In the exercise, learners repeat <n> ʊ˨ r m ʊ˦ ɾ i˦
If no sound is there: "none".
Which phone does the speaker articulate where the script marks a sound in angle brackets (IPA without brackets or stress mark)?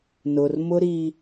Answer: n